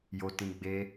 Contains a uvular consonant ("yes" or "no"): no